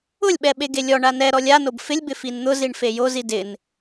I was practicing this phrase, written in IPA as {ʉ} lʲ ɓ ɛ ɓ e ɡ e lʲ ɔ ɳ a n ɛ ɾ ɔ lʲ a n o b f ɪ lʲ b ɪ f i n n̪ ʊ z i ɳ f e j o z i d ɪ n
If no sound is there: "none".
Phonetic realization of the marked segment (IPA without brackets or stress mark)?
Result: ʊ